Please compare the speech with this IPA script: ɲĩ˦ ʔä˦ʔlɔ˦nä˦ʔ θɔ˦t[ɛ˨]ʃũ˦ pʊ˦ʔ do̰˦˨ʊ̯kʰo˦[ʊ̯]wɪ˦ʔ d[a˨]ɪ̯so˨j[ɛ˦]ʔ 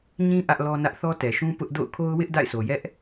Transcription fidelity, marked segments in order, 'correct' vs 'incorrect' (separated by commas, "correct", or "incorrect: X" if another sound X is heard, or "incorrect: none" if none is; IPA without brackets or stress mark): correct, correct, incorrect: a̰˦˨, correct